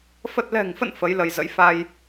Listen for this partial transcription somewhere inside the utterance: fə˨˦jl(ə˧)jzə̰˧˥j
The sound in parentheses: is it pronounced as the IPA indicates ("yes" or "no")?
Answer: yes